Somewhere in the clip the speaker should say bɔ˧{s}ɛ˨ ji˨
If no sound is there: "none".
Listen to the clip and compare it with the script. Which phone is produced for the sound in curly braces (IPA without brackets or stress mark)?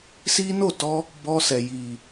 s